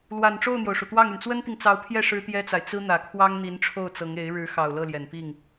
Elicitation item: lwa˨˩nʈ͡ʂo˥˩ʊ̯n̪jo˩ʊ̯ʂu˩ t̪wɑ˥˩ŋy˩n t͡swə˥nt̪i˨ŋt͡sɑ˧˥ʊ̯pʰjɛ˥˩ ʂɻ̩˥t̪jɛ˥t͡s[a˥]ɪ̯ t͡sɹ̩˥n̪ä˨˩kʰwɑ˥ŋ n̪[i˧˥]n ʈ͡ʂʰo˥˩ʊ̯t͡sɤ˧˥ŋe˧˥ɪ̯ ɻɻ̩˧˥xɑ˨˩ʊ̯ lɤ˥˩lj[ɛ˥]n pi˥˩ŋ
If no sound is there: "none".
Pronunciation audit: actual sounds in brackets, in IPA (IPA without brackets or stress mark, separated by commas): a˨, i˧˥, ɛ˨˩